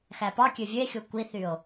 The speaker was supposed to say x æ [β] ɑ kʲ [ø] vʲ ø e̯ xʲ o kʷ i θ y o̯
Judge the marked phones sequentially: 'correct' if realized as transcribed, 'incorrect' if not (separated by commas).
incorrect, correct